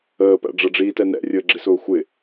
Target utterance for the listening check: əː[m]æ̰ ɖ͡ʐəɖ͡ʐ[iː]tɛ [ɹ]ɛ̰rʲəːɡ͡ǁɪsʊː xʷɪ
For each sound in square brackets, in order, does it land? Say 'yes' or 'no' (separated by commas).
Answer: no, yes, no